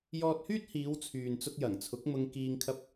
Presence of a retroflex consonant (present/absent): absent